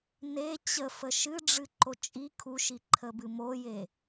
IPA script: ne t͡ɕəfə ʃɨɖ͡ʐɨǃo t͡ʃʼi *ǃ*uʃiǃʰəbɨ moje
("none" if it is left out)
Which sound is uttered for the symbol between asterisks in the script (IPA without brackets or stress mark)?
kʰ